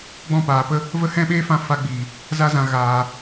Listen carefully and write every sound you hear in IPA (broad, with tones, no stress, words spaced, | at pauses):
ɡ͡bɔ̃˦˨paː˨pə˦ | və˦hɛ̃˦ɓeː˦fã˧ fa˧ɡ͡biː˨ | za˧zã˨ ɣaː˨